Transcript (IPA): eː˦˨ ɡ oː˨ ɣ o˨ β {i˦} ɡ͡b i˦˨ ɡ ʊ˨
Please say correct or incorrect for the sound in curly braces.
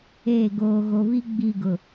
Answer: correct